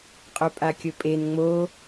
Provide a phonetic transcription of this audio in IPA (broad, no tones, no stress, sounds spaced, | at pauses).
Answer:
qʼ ɵ pʼ a kʲ ɵ pʼ e n ŋ͡m o